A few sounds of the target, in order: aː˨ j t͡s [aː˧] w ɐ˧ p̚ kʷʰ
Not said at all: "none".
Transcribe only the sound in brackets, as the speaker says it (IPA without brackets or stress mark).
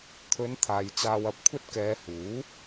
aː˧